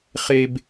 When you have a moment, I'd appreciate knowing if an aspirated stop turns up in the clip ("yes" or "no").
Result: no